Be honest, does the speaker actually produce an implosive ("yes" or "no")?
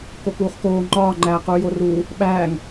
yes